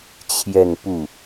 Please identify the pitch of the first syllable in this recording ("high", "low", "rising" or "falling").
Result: falling